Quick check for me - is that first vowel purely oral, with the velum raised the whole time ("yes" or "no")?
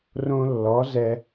no